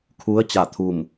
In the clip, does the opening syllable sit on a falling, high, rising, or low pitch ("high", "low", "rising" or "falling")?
rising